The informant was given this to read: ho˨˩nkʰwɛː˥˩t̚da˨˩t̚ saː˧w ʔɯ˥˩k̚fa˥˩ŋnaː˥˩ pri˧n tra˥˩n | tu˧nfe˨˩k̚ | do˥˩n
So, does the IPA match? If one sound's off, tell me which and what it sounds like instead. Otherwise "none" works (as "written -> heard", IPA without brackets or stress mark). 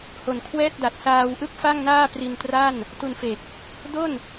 none